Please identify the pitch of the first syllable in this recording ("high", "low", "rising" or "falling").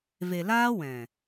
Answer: low